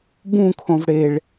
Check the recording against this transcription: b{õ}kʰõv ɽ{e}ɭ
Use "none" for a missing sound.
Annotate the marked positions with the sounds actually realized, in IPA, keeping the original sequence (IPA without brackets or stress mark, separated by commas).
ũ, e